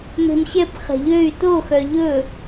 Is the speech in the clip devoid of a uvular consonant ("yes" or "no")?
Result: no